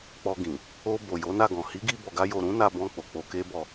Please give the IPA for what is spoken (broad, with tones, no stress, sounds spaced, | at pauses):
k͡p ɔ˧ ɡ ĩ˨ | o˧ b o˨ j o˨˦ n a˦˨ ɡ ɔ̃˨ h i˨˦ ɡ i˧ b ɔ˨ ɡ a˧ j o˨ ɾ ũ˨˦ n a˧ b ɔ̃˧ k͡p o˨ k͡p o˧ k e˦ b ɔ˦˨